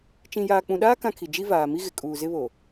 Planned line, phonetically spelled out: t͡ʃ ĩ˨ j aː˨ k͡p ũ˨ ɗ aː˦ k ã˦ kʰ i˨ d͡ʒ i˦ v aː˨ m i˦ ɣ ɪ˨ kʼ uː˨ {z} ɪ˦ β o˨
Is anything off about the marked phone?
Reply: no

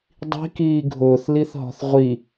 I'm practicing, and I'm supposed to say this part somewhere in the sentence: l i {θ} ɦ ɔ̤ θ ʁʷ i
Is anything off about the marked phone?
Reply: no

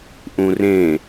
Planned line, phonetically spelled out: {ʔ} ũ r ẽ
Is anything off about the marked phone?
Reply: no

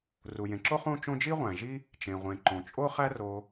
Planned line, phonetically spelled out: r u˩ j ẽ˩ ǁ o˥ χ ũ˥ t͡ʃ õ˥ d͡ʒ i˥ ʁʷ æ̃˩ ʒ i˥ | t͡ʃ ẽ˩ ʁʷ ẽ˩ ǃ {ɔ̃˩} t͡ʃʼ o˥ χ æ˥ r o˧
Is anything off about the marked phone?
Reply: yes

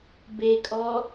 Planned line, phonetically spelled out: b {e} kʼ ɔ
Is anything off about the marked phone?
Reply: no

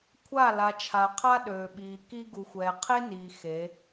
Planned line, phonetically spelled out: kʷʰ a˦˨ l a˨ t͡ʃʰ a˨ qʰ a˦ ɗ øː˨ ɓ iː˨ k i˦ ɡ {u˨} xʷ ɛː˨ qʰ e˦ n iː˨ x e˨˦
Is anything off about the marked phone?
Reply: no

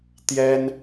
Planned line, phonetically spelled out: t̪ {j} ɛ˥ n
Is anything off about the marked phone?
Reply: no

